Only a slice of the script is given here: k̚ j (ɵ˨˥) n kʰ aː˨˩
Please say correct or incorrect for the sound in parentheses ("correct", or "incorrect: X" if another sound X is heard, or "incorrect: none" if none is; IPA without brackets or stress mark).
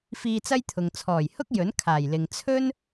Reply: correct